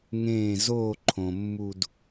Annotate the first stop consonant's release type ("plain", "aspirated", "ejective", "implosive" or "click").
click